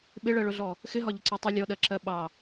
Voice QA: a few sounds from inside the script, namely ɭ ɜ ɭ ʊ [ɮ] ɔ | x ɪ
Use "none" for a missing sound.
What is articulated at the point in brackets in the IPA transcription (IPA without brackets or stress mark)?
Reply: ɮ